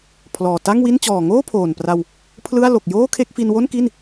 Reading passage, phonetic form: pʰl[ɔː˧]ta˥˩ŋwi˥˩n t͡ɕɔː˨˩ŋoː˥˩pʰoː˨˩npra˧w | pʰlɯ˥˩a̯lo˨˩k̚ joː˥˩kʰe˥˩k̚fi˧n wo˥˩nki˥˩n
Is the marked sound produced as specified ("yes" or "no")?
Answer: no